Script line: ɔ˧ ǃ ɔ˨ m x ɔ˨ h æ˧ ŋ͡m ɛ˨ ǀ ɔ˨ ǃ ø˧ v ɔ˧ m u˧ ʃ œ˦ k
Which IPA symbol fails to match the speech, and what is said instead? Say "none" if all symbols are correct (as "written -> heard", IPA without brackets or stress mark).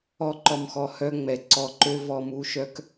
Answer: æ˧ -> œ˧